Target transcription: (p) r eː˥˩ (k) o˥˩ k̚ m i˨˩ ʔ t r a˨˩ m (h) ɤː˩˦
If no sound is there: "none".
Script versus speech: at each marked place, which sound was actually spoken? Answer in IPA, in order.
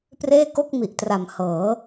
p, k, h

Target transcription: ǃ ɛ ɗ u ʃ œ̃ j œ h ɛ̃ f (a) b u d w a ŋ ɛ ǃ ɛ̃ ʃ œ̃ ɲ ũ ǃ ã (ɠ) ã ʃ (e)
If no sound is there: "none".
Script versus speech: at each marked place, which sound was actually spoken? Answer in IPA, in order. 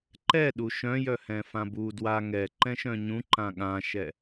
ã, ɠ, ɛ

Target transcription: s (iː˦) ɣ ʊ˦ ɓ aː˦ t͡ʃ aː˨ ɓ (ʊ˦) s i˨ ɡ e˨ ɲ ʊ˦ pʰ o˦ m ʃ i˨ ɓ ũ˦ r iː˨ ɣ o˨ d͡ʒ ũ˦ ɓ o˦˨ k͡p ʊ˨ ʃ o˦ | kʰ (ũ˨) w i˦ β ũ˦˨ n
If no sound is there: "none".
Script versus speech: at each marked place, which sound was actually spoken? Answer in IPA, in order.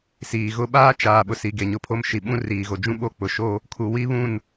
iː˨, ʊ˨, u˨

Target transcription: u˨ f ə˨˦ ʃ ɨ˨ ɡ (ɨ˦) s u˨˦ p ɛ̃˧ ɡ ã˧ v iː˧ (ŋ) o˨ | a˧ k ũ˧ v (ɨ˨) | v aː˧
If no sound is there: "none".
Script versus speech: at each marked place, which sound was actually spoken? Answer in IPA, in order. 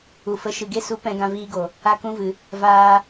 e˦, ɡ, ɨ˨

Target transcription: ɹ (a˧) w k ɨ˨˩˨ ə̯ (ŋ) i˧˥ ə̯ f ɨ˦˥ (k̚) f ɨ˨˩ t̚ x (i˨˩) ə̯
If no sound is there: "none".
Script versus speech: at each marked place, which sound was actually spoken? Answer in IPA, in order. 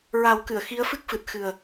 a˨˩˦, x, k̚, ɨ˨˩

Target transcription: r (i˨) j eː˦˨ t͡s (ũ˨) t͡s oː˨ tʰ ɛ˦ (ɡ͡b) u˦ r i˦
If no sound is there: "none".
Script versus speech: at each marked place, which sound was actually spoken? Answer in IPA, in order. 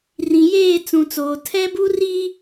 ĩ˨, ũ˨, b

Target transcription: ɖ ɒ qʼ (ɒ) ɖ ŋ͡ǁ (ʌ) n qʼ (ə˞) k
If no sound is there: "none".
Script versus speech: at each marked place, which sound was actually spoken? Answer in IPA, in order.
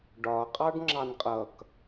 ɑ, ɑ, ʌ

